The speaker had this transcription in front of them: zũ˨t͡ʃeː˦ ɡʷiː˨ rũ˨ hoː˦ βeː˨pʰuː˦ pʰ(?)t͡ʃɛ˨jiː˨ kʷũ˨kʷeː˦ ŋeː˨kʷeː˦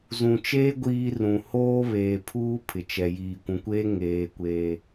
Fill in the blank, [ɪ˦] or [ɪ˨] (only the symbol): ɪ˨